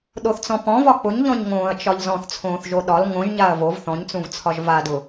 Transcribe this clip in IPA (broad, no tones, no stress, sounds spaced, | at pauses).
ɗ o θ t͡s ɔ̃ p ɔ̃ v ɒ k͡p ʊ ɲ ʎ ɔ̃ ɲ ŋ õː ɐ̯ t͡ʃ ɒ ʎ z ɔ̃ θ t͡sʰ õː θ ʒ o ɗ ɒ l ŋ õ ʒ ɲ a ɐ̯ v o v θ ɔ̃ ɲ t͡s ũ v t͡sʰ ɒ ʒ v a d ʊ